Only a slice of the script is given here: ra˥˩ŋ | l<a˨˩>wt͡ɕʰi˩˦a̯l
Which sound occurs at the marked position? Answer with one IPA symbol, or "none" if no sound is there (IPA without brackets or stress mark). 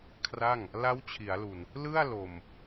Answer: a˦˥